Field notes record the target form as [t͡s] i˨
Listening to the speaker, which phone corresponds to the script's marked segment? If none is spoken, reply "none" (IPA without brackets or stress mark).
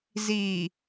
z